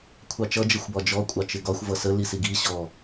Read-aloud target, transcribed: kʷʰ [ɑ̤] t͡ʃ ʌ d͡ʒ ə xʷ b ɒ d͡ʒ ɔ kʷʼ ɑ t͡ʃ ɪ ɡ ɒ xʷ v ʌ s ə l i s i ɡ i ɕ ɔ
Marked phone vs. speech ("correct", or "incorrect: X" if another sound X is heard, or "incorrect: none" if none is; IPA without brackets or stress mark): incorrect: ɑ